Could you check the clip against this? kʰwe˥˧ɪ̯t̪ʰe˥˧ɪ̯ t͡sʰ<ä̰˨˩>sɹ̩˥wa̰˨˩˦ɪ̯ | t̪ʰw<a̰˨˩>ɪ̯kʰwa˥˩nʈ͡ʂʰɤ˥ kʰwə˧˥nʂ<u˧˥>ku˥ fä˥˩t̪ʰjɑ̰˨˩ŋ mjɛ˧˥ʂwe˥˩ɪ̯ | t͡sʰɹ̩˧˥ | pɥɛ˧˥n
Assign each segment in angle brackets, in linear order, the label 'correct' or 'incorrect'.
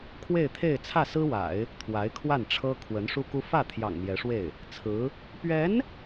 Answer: incorrect: ä˥˩, incorrect: a˧˥, incorrect: u˥

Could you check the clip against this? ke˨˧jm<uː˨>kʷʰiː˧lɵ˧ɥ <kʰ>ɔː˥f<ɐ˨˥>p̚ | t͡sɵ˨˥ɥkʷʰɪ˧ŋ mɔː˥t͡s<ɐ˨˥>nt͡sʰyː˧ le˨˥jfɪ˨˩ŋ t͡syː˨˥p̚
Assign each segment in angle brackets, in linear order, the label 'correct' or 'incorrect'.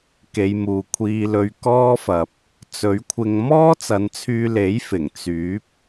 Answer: correct, incorrect: k, incorrect: ɐ˨, incorrect: ɐ˨˧

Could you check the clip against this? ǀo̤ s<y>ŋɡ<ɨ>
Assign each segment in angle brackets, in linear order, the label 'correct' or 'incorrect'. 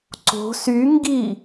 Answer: correct, incorrect: i

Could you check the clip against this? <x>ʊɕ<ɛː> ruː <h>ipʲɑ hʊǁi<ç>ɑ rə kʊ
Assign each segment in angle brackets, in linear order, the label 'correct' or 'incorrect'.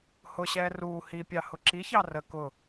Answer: incorrect: h, correct, correct, correct

